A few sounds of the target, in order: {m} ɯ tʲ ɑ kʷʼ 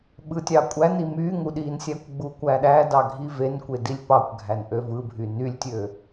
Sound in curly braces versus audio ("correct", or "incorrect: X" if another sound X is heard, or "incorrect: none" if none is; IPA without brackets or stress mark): incorrect: ɓ